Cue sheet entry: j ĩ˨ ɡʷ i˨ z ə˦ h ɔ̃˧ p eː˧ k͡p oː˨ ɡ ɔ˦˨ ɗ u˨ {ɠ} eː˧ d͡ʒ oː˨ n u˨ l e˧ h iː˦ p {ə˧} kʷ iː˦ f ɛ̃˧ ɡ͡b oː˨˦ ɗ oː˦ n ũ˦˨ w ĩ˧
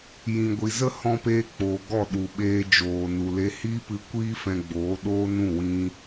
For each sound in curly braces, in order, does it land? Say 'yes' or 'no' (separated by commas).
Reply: no, no